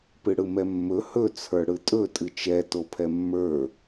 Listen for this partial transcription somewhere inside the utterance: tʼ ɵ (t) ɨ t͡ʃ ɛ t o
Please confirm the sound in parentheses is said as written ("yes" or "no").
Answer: no